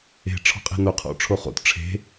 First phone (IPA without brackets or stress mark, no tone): e̤